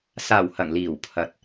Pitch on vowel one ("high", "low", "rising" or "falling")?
low